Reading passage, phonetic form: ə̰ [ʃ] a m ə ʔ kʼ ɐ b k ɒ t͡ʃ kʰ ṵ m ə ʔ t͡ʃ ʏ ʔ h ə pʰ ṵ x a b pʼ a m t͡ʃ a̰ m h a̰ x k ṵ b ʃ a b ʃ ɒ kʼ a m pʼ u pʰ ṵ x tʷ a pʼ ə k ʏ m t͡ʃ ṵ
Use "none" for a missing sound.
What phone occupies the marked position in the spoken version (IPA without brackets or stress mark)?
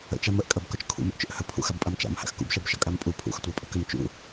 t͡ʃ